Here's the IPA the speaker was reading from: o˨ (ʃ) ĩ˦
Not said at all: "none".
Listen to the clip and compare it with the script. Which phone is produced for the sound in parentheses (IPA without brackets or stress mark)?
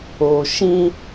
ʃ